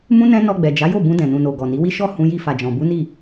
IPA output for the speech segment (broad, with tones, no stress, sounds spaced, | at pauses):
m ũ˦ n ɛ̃˦ n ɔ˧ ɡ͡b ɛ˨ d͡ʒ a˨˦ j o˦˨ b ũ˧ d ɛ̃˨ n ũ˨ n o˨ ɡ ɔ˨ n i˨˦ w i˦ ʃ ɔ˦˨ h ũ˧ j i˧ f a˨ d͡ʒ ɔ̃˨ b u˨˦ n i˦˨